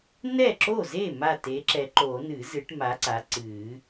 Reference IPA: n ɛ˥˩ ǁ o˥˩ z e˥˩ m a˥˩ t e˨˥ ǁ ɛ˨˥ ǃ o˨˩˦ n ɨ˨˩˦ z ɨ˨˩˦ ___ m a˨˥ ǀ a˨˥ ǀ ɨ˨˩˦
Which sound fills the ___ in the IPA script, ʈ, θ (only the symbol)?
ʈ